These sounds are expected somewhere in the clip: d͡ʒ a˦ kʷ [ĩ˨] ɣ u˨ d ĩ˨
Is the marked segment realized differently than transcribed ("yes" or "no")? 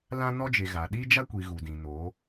yes